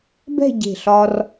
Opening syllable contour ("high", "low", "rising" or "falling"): falling